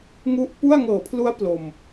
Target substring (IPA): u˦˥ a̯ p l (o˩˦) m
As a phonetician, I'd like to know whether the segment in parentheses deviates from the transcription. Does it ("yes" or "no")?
yes